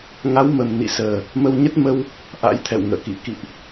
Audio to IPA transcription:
ŋ a˨˦ w m ə˨˩ m n ḭ˧˨ s əː˨˩ | m ə˧ w ɲ ə˦˥ t̚ m ə˧ w | ʔ a̰˧˥ j t̪ʰ ɛ̰˧˨ w ŋ ə̰ː˧˨ k ḭ˧˨ k ḭ˧˨ ʔ

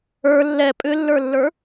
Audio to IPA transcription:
ə˞ lː ɛ pʼ ʏ lː ə˞ lː ə˞

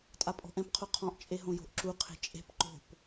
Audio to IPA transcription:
tʼ a pʼ ɔ̤ ʔ ɛ̃ p qʰ o qʰ ɔ̃ ʔ t͡ʃʼ e ɦ õ j o̤ ʔ ǁ u qʰ e̤ t͡ʃʼ e̤ p ǃ o̤ p

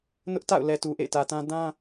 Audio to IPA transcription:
n ʊ˦ ʔ t a̰˦˨ ʊ̯ l ɛ˨ t u˨ ʔ ḛ˦˨ ɪ̯ t ä˨ t ã˦ d ã˦

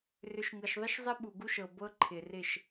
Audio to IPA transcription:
r ʏ˨ ʃ ŋ ɤ˨ ʃ ðˤ ɪ˦ ʃ zˤ ɪ˦ ɓ u˨ ɡ u˦ ʃ ɤ˨ b ɤ˦ ǃʰ ɪ˨ r ɪ˦˨ ʃ

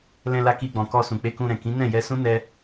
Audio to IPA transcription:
l ɛ̃˧ l a˧ k i˧ ɡ͡b ɔ̃˨ k ɔ˧ s ũ˨ k͡p e˧ k ũ˧ ɾ ɛ̃˨ k ĩ˨˦ n ɛ̃˦˨ j ɛ˧ s ũ˦ n ɛ˧

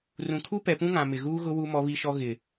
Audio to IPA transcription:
r ũ˨ kʰ u˦ p ɛ˨ p ũ˦ ŋ ã˨ m ɪ˨ ɣ uː˦ ɣ ʊ˦ w u˦ m ɔ˦ β i˦ ʃ ɔ˦ ɣ ɪ˨

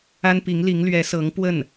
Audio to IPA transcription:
a˥ n p i˧˥ ŋ l i˧˥ ŋ l ɥ ɛ˧˥ s ɤ˧˥ ŋ p w ə˥˩ n

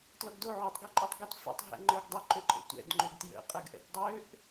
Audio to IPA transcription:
t l ɔ ɡ d o ʕ ø tˤ ɡ ɔ ǃʼ o tˤ ɡ o t f ɛ̰ tˤ ɦ ɛ̰ ŋ͡ǃ ə˞ ɡ dˤ ə ǃ ø ǃʼ ə̰ tʷ ɛ̰ d ŋ͡ǃ ʏ ɡ t j ə̰ qʼ ə ɡ ʔ ɛ̰ t dˤ ø ʔ

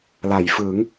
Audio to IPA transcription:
l a˩˦ j f ɯ˩˦ ŋ

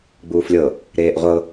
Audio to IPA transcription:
ɡ͡b uː f lʲ ɤ | ɾ eː ʔ ʁʷ ɤ

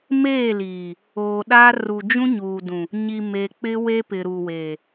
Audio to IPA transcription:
m eː˦˨ l iː˨ | oː˨ ɗ aː˦ r u˨ d͡ʒ ũ˦ ɲ uː˨ d ũ˨ | ɲ i˨ m e˨ k͡p ɪ˦ w e˦ p ɪ˨ ɾ u˨ w eː˨

